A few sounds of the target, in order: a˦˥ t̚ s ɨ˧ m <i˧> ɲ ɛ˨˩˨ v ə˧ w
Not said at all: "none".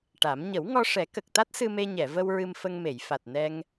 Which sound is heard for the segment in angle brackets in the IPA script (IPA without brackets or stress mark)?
e˧